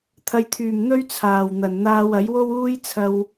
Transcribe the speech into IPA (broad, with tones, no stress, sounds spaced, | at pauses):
t̪ʰ ɐ˨ j t̪ʰ yː˨˩ m n̪ ɵ˥ ɥ t͡sʰ aː˨˩ w n̪ ɐ˨˩ n n̪ aː˧ w ɐ˨˥ j w o˥ w uː˥ j t͡sʰ ɐ˧ w